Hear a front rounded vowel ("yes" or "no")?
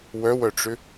yes